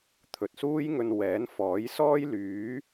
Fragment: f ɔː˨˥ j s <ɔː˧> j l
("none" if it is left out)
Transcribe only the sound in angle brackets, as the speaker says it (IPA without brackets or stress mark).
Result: ɔː˥